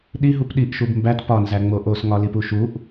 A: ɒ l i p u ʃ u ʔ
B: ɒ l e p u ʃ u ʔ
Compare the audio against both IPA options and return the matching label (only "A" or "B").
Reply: A